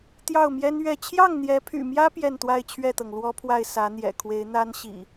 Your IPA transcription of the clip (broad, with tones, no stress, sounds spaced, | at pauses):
t̪ j ɑ˥˨ ʊ̯ m j ɛ˦ n ɥ ɛ˥˨ t͡ɕʰ j ɑ˥˨ ŋ n̪ j ɛ˨˦ pʰ y̰˨˩ m j ä˦ p j ɛ˥˨ n t̪ w a˥˨ ɪ̯ t͡ɕʰ ɥ ɛ˥˨ t̪ ɤ˩ ŋ l w ɔ˦ pʰ w a˥˨ ɪ̯ s ä˨˦ n̪ j ɛ̰˨˩ kʰ w e˨˦ ɪ̯ n̪ a˦ n ɕ ḭ˨˩